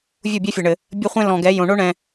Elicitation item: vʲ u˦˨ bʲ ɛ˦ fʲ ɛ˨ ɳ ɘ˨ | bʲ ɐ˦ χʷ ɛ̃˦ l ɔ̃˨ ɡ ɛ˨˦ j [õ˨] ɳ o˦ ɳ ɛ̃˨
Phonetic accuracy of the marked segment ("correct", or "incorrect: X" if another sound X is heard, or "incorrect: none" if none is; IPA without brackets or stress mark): correct